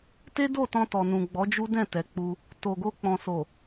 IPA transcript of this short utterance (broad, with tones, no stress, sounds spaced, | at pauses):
t e˦ d o˦˨ t ɔ̃˧ t ɔ˨ n ũ˨ ɡ͡b ɔ˨˦ d͡ʒ u˦ d ɛ̃˦˨ t ɛ˨ k͡p u˧ | t o˨ ɡ o˧ k͡p ɔ̃˨ s o˨